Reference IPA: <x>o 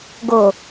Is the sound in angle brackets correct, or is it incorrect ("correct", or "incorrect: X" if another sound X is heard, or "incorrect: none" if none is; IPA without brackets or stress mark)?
incorrect: ɡ